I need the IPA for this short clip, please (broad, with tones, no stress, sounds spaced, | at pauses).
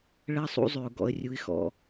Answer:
ɭ ɜ˦ sˤ ṵ˦ zˤ ʉ˨ ʊ̯ ɡ ɔ̰˦ ə̯ rʲ u˦ ɪ̯ x ɔ̰˦